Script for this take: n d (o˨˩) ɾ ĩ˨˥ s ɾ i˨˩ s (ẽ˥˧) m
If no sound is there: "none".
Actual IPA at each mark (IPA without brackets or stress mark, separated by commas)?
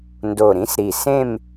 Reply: o˨˩, ẽ˥˧